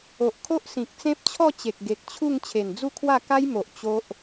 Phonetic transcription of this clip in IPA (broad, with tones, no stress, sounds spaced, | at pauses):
o˨ ʔ kʰ o˦ ʔ s ĩ˨ k̚ t͡s ẽ˦ p̚ t͡ɕʰ ɔ˥˧ t͡ɕ e˨ k̚ ɡ e˨ k̚ t͡ɕʰ u˥˧ ŋ t͡ɕʰ e˨˩ n d͡z u˥˧ kʰ w a˥˧ k a˦ j m o˨ ʔ t͡ɕ o˦ ʔ